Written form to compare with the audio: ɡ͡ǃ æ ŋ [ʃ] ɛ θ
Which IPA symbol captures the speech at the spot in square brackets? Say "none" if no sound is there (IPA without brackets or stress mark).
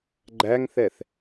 θ